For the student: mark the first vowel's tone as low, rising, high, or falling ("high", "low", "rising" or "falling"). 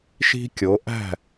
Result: high